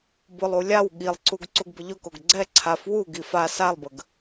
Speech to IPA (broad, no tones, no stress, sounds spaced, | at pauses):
b ʊ lˠ u lʲ a w ɠ i lˠ ǀ u ɡ ǀ u ɡ b ə ʎ ʊ k o ɡ ɡ͡ǀ ɛ ǀʰ a f w u ɡ i f a s a lˠ b ə ɡ